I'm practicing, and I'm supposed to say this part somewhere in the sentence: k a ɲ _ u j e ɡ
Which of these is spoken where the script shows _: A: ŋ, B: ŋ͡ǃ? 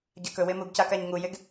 A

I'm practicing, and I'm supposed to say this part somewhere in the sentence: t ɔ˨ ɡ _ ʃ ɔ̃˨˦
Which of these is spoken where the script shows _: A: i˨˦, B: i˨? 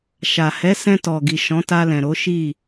B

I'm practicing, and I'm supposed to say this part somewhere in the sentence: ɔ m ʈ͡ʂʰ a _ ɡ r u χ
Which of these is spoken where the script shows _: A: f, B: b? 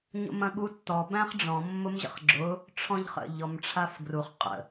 A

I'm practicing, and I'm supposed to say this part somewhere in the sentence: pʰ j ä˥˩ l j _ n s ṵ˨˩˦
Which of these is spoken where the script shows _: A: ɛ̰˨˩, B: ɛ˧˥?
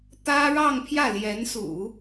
B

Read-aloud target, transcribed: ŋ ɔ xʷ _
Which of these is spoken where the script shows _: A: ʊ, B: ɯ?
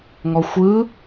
B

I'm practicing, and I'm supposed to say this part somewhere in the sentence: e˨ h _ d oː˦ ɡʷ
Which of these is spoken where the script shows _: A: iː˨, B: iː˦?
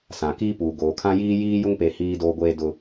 B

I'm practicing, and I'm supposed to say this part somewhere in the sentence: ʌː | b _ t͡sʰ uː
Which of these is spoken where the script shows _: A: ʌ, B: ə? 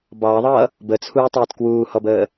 B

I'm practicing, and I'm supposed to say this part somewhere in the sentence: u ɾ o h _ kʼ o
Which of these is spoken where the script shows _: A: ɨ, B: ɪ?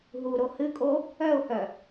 A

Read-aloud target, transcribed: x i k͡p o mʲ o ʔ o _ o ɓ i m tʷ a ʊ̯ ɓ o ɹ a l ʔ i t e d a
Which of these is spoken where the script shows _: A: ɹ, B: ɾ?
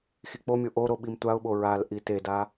B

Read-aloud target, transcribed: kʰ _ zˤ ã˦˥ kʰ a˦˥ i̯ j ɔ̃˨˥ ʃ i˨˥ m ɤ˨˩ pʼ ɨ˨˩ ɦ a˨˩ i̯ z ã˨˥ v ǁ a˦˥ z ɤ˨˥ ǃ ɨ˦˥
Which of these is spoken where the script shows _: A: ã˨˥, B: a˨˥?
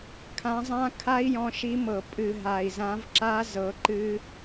A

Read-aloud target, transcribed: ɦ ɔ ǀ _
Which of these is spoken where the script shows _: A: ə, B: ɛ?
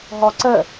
A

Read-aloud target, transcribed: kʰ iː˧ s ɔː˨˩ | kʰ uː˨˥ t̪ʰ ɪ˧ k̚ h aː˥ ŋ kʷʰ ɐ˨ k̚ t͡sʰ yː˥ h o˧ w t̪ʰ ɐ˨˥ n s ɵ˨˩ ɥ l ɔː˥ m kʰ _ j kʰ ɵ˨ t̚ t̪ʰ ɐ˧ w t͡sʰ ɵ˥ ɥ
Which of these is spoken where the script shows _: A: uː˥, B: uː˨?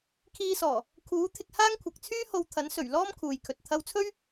B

